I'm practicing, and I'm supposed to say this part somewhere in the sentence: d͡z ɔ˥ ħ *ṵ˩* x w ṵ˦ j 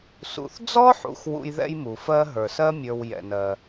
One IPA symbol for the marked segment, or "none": ṵ˨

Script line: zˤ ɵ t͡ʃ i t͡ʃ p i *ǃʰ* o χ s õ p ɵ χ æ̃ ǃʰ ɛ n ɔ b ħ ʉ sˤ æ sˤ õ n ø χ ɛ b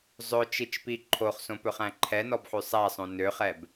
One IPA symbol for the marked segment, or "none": ǃʰ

